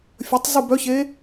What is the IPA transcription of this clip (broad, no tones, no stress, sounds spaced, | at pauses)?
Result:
fʲ ə tˤ z u b œ ç e